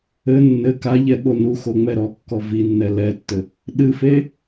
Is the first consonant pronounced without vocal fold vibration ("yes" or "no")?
no